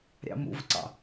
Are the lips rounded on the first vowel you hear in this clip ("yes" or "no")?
no